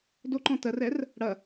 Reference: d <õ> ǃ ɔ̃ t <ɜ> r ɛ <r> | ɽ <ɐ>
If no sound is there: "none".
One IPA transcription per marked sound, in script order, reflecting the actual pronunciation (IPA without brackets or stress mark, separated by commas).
o, ɜ, r, ɐ